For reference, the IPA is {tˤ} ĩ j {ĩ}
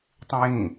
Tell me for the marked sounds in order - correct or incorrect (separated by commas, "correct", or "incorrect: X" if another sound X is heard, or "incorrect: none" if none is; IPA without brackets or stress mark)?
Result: correct, correct